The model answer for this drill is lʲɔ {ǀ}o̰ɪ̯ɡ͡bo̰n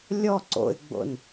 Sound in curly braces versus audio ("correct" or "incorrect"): correct